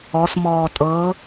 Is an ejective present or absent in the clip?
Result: present